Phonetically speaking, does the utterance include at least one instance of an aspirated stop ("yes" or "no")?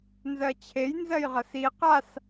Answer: yes